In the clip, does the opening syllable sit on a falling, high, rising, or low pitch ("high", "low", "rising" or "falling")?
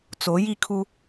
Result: rising